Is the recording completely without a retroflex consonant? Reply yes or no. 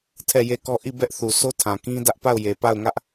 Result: yes